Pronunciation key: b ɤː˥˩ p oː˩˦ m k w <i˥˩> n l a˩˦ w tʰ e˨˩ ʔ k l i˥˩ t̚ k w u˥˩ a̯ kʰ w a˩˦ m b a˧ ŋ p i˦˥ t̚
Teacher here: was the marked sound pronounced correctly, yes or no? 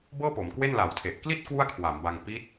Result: no